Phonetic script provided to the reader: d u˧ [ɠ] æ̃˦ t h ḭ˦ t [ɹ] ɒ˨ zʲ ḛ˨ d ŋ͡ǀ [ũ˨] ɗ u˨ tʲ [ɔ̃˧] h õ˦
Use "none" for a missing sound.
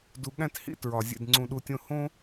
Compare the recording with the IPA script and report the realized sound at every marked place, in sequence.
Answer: ɠ, ɹ, ũ˨, õ˧

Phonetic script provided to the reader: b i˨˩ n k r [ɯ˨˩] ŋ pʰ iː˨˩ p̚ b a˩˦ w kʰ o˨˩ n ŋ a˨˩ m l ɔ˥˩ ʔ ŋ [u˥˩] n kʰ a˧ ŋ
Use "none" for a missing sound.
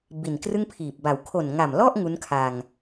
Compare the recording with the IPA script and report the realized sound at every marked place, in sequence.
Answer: ɯ˥˩, u˦˥

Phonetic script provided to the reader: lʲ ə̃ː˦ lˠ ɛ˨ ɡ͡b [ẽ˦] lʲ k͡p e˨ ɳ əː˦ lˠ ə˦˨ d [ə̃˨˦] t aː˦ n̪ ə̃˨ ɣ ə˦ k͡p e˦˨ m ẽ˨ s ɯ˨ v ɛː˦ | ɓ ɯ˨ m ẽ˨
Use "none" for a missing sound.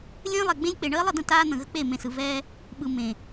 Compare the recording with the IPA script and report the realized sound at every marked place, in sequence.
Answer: ẽ˦, ə̃˦˨

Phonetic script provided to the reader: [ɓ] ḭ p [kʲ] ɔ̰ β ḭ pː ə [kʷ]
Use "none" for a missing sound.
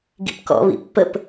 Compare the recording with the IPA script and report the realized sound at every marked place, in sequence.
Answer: ɡ, k, p

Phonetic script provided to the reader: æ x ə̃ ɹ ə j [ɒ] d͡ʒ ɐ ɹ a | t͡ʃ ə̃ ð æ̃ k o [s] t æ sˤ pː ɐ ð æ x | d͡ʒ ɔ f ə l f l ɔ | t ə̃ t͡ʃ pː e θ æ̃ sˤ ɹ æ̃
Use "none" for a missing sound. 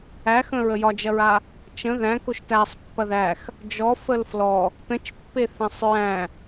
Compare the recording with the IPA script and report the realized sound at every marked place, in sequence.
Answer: ɒ, ʃ

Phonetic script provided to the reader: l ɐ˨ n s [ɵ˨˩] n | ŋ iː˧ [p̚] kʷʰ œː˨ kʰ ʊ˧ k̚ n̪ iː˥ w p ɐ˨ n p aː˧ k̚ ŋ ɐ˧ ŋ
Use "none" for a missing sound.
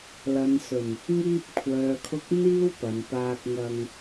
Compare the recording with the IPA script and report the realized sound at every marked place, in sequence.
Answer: ɵ˨˩, p̚

